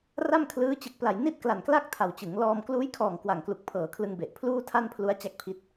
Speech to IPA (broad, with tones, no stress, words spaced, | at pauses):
ra˥˩mkʰlɯː˦˥ t͡ɕɯ˨˩k̚pla˨˩jni˥˩t̚ kla˨˩nkla˥˩k̚ tʰa˨˩wt͡ɕɯ˩˦ŋ lɔː˧m kluː˦˥jkʰɔː˨˩ŋ kwa˨˩ŋklu˨˩k̚pʰɤː˨˩kʰlɯ˧ŋ be˨˩ʔ pʰluː˥˩tʰa˥˩npʰlu˦˥a̯ t͡ɕa˦˥k̚pʰi˦˥t̚